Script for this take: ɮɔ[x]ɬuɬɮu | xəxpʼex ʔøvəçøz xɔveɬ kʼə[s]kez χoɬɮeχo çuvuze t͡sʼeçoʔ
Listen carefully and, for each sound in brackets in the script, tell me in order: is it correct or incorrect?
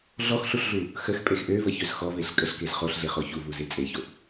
correct, incorrect: ɬ

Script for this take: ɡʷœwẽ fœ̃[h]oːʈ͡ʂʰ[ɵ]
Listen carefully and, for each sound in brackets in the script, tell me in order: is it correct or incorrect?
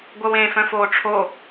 incorrect: f, incorrect: o

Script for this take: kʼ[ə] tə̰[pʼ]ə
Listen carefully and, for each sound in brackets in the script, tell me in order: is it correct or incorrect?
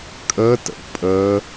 correct, correct

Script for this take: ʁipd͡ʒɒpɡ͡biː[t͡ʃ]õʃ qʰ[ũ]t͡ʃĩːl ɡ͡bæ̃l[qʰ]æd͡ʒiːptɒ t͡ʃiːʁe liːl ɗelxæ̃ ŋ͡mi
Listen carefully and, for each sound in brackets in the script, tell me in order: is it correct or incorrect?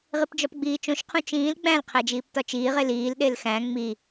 correct, correct, correct

